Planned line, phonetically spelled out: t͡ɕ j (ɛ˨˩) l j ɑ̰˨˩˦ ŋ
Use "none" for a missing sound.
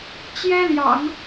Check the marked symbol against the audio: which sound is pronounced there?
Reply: ɛ˥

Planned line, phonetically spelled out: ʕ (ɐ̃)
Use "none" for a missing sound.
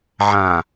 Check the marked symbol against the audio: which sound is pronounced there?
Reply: ã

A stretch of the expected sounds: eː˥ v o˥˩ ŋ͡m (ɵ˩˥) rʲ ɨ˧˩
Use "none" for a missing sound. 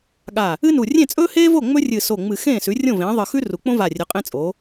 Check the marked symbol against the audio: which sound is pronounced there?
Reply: ɵ˥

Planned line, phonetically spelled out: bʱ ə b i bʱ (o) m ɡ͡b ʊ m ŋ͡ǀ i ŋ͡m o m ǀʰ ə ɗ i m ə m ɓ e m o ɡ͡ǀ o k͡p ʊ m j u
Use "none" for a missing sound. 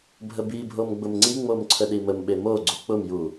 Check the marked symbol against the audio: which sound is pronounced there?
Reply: o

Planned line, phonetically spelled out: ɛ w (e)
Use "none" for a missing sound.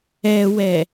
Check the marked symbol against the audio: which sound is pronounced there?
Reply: ɛ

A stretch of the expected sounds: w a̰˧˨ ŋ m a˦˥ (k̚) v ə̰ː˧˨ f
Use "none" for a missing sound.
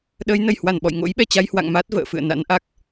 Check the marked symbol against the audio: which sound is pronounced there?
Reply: t̚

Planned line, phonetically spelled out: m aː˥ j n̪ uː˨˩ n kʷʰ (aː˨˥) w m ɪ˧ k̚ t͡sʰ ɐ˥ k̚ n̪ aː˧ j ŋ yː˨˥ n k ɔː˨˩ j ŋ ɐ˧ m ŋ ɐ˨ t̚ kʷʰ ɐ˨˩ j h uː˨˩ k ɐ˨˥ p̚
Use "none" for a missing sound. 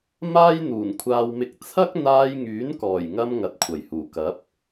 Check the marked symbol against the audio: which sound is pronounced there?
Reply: aː˧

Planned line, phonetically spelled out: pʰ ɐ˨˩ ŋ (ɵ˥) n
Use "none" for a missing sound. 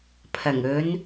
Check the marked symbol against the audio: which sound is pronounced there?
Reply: ɵ˨˧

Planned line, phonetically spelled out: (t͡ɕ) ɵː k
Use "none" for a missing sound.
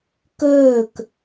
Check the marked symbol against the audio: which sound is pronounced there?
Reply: k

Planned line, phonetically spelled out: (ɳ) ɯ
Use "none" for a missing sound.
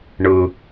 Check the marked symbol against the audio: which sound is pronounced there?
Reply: ɳ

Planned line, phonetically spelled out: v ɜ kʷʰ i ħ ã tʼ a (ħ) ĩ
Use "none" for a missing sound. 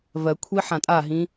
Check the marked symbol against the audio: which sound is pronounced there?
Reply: ɦ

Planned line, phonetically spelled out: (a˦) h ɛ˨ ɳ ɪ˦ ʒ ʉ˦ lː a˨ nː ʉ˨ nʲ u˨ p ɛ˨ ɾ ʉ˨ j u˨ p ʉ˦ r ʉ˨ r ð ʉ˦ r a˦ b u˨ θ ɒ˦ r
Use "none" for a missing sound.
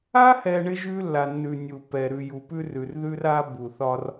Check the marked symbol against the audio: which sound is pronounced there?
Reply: a˦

